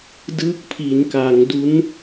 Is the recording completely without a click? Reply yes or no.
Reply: yes